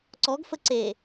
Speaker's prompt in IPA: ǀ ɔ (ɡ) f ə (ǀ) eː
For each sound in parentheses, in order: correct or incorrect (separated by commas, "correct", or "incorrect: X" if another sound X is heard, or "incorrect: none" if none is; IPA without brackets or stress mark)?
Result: correct, correct